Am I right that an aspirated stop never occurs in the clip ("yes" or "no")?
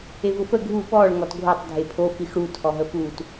no